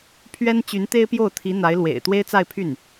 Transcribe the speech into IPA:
pʰɥɛ˥n t͡ɕy˧˥nt̪e˥ɪ̯pjo˥˩ʊ̯t̪ʰi˧˥ n̪a˧˥ɪ̯lwḛ˨˩ɪ̯ t̪we˥ɪ̯t͡sa˥˧ɪ̯pʰy˥˩n

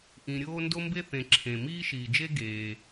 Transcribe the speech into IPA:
ʔĩ˨ɾʲoː˦ ndo˥mbe˥θẽ˨ ǁʰẽ˩ miː˦ʃiː˩d͡ʒe˦ ɡeː˩

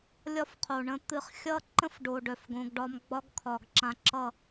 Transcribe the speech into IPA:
lʲɒ˦fqʰo˨ɳə̃˦ t̪ɨ˧χxʲʌ˦ǃə̃˦f ɖo˨ ɖœ˨fɡõ˧ɡɖɒ˦m ɡ͡bɒ˦ɡkʰɒ˨ɡǁã˧ ǁʌ˦˨

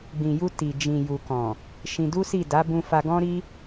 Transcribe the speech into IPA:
ɡ͡bĩ˨ju˧ ti˨ d͡ʒĩ˨ju˨ kɔ̃˨ | ʃĩ˧ du˦si˦˨ da˨˦bũ˧fa˧ ɡɔ̃˦ɾi˦

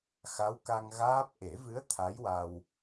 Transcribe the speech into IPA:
xa˧˥wka˧ŋ ɣaː˦˥p̚ ʔe˨˩˦vɨ˧˥ə̯ t̪ʰa˧˥jwa˧w

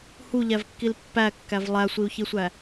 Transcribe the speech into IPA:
huʎævkːil pːækːæv lˠæsʷiu̯çisʷæ

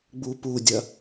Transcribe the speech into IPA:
ɡ͡bupudʲɐ

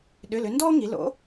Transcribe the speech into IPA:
ɗʏ˩˧˩lʏ˩˧ndɔː˦ ŋi˩˧ lo̰˩˥

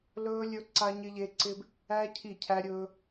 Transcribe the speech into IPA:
lɵː˦ lʲɵ˦ǀa˦ɲɪ˦ʎe˦ ǀɪ˦b | æ˦ cʰi˦˨cʰæ˦ɾʲɵː˦

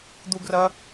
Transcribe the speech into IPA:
d̪u ɡrɐ

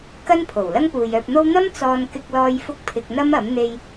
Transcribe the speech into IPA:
kɐ˥npʰo˨˩w lɐ˥ŋpuː˨jœː˧p̚n̪o˥w n̪ɐ˥m t͡sɔː˧nkɪ˧k̚lɔː˧j fʊ˥k̚pʰɪ˧k̚ n̪ɐ˥mɐ˨˥m n̪e˧j

